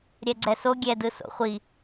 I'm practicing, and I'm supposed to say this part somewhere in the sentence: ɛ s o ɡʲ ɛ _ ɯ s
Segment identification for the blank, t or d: d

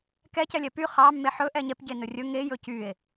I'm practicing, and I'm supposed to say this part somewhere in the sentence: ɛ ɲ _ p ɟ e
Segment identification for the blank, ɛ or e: ɛ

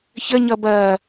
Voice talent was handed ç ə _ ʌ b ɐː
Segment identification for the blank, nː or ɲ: ɲ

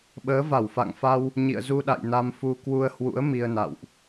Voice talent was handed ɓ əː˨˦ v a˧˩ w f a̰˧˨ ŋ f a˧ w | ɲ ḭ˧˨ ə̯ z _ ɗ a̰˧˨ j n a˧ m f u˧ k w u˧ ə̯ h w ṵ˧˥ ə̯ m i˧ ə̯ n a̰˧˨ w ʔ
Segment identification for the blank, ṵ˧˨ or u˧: u˧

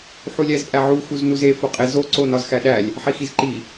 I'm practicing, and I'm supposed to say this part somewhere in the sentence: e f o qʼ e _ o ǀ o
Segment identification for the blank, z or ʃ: z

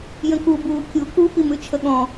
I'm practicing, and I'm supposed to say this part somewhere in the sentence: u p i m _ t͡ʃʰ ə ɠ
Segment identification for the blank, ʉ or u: ʉ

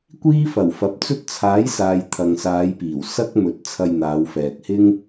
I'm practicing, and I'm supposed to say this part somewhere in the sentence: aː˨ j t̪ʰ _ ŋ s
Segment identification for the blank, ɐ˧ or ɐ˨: ɐ˨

